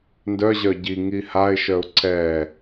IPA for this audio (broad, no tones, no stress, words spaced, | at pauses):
ndœʑœ ɟiŋi haɪ̯ʃœʊ̯ ǀɛ